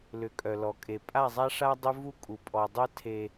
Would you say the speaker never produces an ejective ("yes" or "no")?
no